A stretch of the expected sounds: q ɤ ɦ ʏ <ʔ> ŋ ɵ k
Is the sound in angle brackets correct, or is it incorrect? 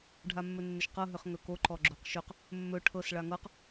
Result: incorrect